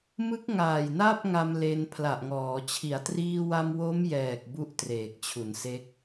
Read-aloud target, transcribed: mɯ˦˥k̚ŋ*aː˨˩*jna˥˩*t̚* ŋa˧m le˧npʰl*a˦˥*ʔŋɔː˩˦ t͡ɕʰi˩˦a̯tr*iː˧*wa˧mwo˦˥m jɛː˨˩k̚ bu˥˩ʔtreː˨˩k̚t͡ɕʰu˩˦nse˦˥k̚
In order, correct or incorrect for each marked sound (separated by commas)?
correct, incorrect, incorrect, correct